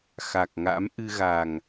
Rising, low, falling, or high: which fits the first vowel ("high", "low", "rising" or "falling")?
low